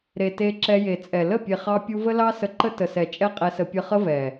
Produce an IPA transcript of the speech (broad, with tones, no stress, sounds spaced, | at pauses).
ɾ e˨ t e˧ ǁ ɛ˧ j e˨ t͡sʼ ɛ˨ l ə˦˨ pʲ e˨ χ ɑ˧ pʲ u˧ v ə˦ l ɑ˦ s ə˧ ǃ ə˦ t ə˨ s ɛ˨ t͡ʃʼ ɛ˦ qʼ ɛ˧ s ə˧ pʲ ə˧ χ ə˦ v ɛ˨